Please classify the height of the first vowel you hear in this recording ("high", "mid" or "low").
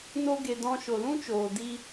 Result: mid